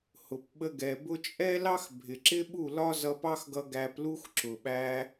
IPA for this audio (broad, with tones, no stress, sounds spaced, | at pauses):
h ʊ˨ p ɓ ə˧ ɡ ɛ˨ b ʊ˧ t͡ʃʼ ɛ˦ l ɑ˦ x bʱ ɪ˨ ǁ ɪ˦ ɓ u˦˨ l ɒ˦ z ʌ˧ p ɑ˦ x ɡ ʌ˧ ɡ æ˧ p l u˦ x ǁ ʊ˨ ɓ æ˧